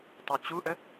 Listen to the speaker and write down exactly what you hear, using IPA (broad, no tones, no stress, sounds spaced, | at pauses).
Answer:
tˤ u t͡ɕ u ʔ ə